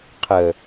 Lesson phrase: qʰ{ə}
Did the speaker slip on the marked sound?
no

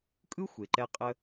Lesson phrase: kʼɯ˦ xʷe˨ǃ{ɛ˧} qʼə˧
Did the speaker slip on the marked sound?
no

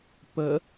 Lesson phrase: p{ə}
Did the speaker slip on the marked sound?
no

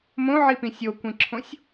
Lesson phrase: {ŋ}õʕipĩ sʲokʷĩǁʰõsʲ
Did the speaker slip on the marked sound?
yes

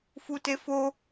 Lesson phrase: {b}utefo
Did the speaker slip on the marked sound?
yes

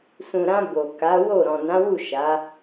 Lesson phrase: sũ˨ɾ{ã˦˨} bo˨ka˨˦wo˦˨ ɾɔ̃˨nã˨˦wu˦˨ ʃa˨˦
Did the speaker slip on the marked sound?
yes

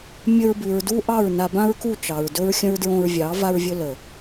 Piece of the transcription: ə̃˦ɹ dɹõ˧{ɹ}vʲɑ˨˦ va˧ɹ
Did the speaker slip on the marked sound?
no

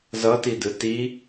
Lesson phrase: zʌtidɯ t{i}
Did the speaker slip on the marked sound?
no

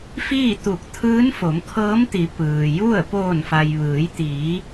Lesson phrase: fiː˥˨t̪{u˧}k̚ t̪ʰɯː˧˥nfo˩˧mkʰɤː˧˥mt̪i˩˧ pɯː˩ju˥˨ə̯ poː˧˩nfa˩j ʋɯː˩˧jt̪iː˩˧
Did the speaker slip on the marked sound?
yes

